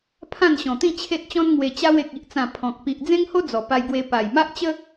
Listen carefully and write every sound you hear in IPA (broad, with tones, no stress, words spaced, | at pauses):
pʰã˥˧nɕɔ̃˨˩t̪ĩ˥˧ t͡ɕʰe˦t̚t͡ɕɔ̃˦nŋwe˧ t͡ɕa˧we˨k̚i˨ʔt͡sã˨˩ pʰɔ̃˨k̚ pi˨ʔd͡zẽ˦ŋho˦ d͡zɔ˨˩pa˧jɡwe˧ pa˨˩jma˦ʔt͡ɕə˦